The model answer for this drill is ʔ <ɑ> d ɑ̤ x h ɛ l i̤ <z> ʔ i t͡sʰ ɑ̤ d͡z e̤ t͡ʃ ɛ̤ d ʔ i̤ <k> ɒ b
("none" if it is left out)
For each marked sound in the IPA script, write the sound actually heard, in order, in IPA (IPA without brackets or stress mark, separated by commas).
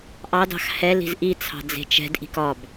ɑ, z, k